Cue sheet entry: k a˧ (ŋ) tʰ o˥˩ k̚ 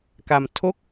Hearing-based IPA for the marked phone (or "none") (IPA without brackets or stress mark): m